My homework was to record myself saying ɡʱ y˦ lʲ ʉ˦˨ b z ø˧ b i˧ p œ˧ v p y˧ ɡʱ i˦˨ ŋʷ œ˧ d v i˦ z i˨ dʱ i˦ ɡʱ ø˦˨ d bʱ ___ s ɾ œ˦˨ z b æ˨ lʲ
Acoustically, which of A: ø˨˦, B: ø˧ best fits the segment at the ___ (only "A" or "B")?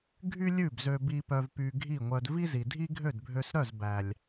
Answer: B